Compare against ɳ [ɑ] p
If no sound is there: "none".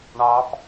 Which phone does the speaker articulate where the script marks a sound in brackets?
ɑ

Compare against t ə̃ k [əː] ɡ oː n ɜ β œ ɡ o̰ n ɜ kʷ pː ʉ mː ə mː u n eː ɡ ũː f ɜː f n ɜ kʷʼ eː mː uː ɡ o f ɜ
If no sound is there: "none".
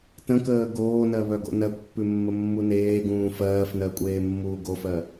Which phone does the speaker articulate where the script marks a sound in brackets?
əː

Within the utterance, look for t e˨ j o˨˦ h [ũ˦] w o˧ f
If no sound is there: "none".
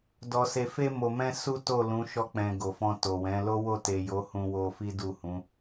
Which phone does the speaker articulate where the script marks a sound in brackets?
ũ˧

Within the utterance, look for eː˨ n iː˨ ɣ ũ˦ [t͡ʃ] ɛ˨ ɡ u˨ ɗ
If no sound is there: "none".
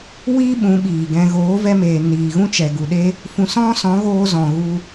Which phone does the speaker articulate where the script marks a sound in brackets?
t͡ʃ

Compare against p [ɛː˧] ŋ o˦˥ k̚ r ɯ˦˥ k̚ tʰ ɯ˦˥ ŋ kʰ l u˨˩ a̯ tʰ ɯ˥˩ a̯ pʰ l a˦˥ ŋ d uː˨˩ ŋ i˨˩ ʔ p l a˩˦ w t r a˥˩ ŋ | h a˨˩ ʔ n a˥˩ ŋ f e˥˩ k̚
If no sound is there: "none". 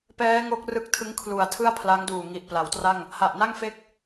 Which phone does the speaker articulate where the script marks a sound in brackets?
ɛː˦˥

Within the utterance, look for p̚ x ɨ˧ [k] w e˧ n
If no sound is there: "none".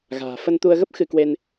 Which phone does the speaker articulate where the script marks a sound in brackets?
k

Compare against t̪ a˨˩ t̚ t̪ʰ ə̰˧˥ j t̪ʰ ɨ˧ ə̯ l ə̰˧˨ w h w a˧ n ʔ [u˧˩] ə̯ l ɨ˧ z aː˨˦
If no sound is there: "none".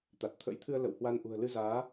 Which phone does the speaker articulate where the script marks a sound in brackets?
ṳ˨˩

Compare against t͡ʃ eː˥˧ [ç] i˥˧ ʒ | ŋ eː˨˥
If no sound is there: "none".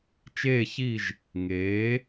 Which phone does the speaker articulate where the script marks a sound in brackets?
ç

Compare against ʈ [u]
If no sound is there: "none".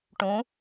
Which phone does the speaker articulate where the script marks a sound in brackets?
ũ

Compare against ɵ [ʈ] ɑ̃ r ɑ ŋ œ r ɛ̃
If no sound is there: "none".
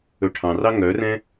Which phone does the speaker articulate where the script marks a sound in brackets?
ʈʰ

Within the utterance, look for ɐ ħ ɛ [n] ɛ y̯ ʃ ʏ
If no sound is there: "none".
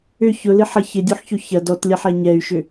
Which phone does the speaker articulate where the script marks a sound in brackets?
ɲ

